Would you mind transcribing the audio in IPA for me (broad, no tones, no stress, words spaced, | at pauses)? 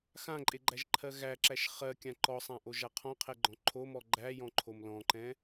xãǃʼeɡ͡ǃæʒǃʰɜ ɣæǁæʃ χɜkʲã ǃɔsˤãʔoʒa qʰɔ̃qʰɛɡ͡ǃɔ̃ ǃʰomɔ ɡ͡ǃæjɔ̃ǃʰom lɔ̃ǃɛ̃